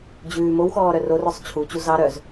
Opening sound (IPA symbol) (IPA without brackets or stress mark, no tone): d͡ʑ